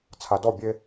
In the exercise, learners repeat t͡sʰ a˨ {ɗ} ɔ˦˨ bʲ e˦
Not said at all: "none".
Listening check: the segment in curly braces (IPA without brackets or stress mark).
d